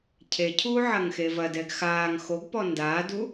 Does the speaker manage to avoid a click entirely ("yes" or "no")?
yes